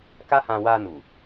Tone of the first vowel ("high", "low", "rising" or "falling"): high